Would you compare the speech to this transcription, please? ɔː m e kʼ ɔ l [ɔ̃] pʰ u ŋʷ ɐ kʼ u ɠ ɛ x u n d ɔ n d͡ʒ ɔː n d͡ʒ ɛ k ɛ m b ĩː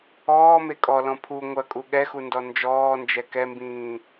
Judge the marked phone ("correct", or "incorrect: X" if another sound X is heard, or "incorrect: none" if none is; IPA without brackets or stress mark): correct